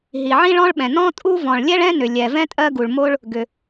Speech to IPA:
ɦ i˩ ʕ ĩ˥ ɭ ɔ̃˥ ɭ ɓ ɛ̃˩ n ɔ̃˥ tʼ u˥ v ɔ̃˩ ɭ lʲ ɛ˥ ɭ ɛ̃˥ n ʏ˩ lʲ ɛ˩ v ɛ̃˥ tʼ ɜ˥ ɡ u˩ ɭ m o˥ ɭ | ɡ ʏ˩

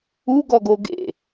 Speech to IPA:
u ɡ ɔ ɡ o ɡ ḛ

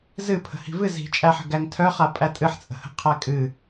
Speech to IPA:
z ɨ pʰ ə̤ h i̤ v ɨ z i̤ t͡ʃʼ æ ħ ə̤ ɡ æ ŋ tʰ œ χ a pʼ æ tʼ ɨ ħ t͡sʼ ə̤ h ə̤ qʰ æ kʼ ɨ

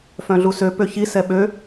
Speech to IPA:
f œ̃ ɮ u s ø p ø ç i s ɛ ɓ ø

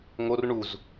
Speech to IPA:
ŋ o r ɳ u z

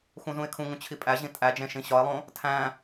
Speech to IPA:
x ũ z ũ ɪ̯ kʰ ũ ŋ ũ t͡ɕʰ i pʼ æ ʑ ĩ tʼ æ d͡ʒ ẽ ʃ ĩ ɕ ɒ ɪ̯ lˠ õ | tʰ æ̃

